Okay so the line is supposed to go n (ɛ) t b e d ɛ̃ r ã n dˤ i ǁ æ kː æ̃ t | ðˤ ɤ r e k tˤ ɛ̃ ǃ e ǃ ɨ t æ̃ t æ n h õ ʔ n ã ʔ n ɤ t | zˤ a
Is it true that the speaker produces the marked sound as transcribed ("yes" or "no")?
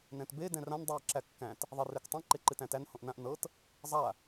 no